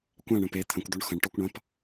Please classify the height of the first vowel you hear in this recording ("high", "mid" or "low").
low